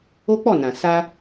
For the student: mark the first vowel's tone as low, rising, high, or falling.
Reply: high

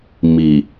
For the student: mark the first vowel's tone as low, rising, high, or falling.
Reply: low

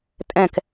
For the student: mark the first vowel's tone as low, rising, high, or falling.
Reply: falling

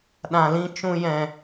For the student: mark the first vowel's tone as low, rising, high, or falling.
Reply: low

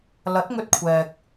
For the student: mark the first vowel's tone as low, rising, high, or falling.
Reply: rising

